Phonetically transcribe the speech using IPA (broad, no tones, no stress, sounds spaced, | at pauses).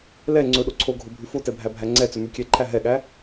l ɛ ŋ͡ǀ ɵ ɗ o ǀʰ o ɡʱ o bʱ ʉ f o t ɛ bʱ æ bʱ æ ŋ͡ǀ ɛ t͡s ɵ m ʉ kʲ ɛ ǃʰ æ ɦ ɛ ɠ æ